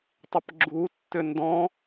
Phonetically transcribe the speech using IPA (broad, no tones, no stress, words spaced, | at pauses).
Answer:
tˤɪpɡ͡ǁutːʏ ndɔ̃